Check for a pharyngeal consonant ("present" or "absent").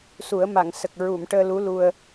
absent